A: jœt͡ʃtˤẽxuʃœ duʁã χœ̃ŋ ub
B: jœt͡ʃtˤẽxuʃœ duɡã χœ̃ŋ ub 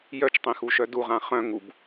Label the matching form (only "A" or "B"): A